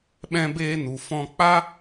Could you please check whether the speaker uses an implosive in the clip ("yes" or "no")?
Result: yes